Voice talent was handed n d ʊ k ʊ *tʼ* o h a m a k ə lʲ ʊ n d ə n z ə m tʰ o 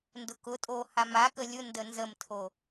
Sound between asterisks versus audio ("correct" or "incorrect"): correct